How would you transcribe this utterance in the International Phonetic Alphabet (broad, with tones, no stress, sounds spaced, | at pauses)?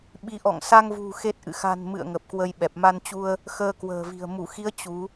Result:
ɓ i˨˦ ʔ ɔ̰˧˨ ŋ s a˧ ŋ v ṳ˨˩ x e˦˥ t̚ ʔ ɨ̰˧˨ x a̤˨˩ n m ɨ̰˧˨ ə̯ ŋ ə˨˩ p̚ k w ə˧ j ɓ ɛ˨˩ p̚ m a˧ n t͡ɕ u˧ ə̯ | x əː˧ k w ə̤ː˨˩ v i̤˨˩ ə̯ m u˧˩ x i˨˦ ə̯ t͡ɕ u˨˦